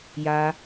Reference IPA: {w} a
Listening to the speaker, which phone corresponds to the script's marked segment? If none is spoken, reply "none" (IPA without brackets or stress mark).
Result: j